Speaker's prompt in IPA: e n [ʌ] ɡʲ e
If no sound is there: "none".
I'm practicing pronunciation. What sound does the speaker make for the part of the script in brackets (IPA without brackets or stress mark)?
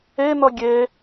ʌ